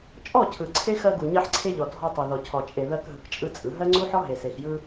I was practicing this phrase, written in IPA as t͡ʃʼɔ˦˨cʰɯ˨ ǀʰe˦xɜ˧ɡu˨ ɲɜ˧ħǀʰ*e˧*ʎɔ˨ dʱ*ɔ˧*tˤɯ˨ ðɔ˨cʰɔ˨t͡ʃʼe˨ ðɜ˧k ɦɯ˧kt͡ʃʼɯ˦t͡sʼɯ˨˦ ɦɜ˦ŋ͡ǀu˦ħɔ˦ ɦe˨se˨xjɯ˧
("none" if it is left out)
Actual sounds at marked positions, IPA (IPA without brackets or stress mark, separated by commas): e˧, ɔ˧